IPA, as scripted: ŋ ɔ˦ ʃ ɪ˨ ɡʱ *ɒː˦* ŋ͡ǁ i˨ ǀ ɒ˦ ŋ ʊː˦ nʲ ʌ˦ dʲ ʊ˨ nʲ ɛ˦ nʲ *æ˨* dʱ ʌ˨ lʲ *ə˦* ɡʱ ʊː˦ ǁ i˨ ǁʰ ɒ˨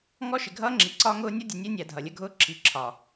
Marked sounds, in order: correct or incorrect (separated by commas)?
incorrect, correct, correct